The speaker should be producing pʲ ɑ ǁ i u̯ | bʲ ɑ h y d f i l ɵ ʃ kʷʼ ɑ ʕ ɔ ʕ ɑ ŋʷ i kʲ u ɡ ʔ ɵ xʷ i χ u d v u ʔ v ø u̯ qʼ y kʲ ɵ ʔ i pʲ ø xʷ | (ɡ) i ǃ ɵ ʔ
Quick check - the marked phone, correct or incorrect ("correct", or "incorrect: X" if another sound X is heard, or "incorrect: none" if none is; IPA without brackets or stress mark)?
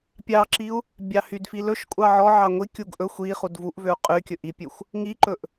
incorrect: ŋ